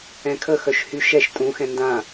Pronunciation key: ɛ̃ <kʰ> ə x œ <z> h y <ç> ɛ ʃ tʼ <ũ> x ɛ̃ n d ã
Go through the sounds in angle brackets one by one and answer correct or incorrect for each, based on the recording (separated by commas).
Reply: correct, incorrect, incorrect, correct